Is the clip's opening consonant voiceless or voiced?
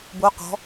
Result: voiced